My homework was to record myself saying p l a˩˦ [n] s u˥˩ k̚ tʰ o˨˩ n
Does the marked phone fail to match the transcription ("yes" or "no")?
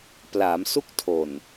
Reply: yes